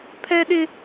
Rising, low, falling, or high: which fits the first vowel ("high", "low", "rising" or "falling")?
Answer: high